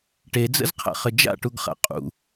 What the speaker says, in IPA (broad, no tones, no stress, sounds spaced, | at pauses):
ʈ e d͡z ə̰ z qʰ a̰ χ ɘ d͡ʒ a̰ ʈ u ɡ χ a̰ qʼ ṵ